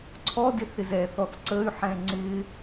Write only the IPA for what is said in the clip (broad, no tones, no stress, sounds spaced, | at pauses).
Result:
ǀʰ ɔ d ɪ θ ɪ z ɛ θ ɔ θ ǀ ə y̯ ħ ɛ̃ ŋ͡ǀ ɪ